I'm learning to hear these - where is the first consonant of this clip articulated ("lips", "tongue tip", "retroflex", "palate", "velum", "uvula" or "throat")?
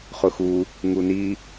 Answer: uvula